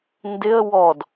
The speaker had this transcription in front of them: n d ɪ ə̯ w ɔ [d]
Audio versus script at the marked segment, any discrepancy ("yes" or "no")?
no